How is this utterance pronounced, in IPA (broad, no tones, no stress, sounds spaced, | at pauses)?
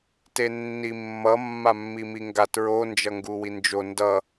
t e nː i mː ʌ mː a mː i m i ŋ ɡ a t ɹ o n d͡ʒ ʌ ŋ ɡ u w i n d͡ʒ o n d ʌ